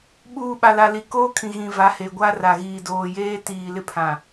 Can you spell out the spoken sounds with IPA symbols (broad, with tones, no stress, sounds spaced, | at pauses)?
ɓ uː˨ ɓ a˨ l a˨ l i˨ k oː˦ kʰ ĩ˨ ɣ ĩ˨ v a˨˦ h e˨ ɡʷ a˦ r a˨ ɣ iː˨ d oː˨ j eː˦ t iː˨ l ɪ˦ pʰ ã˨